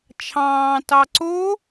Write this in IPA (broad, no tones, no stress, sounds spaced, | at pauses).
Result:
t͡ʃʰ ɑ̃ː t ɑ ǀ o